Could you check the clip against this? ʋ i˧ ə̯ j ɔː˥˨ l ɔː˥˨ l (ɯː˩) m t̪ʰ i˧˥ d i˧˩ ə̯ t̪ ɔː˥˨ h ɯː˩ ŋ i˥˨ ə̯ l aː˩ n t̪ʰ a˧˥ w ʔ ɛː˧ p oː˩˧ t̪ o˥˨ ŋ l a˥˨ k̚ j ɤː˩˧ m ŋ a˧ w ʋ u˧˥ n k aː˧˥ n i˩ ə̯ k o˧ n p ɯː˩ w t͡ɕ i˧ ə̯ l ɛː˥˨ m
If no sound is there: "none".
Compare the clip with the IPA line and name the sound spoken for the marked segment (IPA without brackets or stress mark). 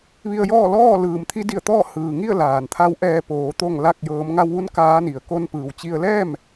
ɯː˩